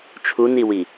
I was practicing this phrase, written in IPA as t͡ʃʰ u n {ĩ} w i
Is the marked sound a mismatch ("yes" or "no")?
yes